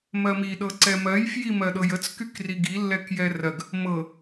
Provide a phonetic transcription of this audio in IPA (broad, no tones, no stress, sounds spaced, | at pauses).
m ɜ m i ɗ ɤ ǀ ɛ m ɜ j f j i m ɜ ɗ ɤ j ə t͡s k y k r i ɡ i lː ɛ k j ɛ r ɜ ɡ | m ɤ